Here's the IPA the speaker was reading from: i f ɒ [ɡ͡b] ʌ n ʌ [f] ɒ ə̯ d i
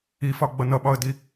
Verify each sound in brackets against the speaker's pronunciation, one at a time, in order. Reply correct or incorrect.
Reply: correct, incorrect: ɓ

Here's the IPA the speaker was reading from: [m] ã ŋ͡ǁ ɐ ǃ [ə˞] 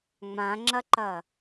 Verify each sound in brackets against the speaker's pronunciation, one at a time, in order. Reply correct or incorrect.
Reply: incorrect: ŋ͡m, incorrect: ɐ

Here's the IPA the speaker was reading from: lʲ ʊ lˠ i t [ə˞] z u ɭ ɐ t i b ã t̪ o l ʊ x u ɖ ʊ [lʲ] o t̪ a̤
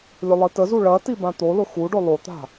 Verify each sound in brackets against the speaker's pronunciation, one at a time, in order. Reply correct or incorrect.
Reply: incorrect: ə, incorrect: lˠ

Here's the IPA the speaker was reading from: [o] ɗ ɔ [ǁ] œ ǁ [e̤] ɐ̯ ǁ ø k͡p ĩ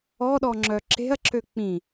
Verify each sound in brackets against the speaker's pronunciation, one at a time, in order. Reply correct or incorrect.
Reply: incorrect: ɔ, incorrect: ŋ͡ǁ, correct

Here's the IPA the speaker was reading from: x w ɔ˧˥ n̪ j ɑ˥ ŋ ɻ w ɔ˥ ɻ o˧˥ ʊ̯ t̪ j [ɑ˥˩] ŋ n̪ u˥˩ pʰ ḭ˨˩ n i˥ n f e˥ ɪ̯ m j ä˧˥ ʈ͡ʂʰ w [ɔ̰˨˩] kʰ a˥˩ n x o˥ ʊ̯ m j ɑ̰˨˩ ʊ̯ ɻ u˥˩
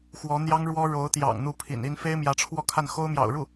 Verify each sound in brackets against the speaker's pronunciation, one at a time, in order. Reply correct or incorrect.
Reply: incorrect: ɑ̰˨˩, incorrect: ɔ˥˧

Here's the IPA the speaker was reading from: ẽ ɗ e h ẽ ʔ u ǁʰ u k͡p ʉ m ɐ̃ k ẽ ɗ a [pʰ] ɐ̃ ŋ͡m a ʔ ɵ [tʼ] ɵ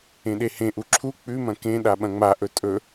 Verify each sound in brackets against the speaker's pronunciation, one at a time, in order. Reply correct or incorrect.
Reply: incorrect: ɓ, correct

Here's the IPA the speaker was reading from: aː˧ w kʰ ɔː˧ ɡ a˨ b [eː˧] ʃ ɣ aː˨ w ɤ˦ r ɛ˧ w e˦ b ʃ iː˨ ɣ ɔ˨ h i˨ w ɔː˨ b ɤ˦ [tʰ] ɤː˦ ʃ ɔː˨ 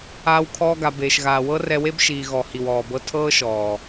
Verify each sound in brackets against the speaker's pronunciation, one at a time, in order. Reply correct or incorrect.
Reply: incorrect: eː˨, correct

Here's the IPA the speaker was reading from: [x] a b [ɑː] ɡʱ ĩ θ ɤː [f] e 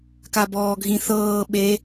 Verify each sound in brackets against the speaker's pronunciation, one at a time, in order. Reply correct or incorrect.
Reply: incorrect: k, incorrect: ɔː, incorrect: ɓ

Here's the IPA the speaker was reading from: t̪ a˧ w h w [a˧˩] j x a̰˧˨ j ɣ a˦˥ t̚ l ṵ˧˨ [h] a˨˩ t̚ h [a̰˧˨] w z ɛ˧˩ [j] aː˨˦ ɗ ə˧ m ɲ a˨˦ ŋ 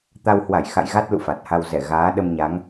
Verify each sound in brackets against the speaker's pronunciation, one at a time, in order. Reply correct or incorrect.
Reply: correct, incorrect: f, incorrect: a˧, incorrect: ɣ

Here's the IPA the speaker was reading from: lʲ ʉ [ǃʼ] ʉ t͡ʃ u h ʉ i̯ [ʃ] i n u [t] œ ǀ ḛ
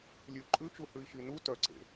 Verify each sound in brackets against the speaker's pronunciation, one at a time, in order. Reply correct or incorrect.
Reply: correct, correct, correct

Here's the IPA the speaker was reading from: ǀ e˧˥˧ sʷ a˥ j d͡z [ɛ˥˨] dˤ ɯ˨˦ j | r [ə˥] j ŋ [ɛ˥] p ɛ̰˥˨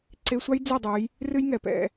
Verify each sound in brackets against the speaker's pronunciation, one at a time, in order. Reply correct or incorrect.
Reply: correct, incorrect: ɨ˥, incorrect: ɛ˨˩

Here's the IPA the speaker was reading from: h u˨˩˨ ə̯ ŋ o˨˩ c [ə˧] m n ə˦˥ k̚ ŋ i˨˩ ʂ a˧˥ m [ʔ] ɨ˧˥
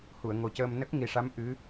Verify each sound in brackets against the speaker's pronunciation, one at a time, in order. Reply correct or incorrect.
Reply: incorrect: əː˧, correct

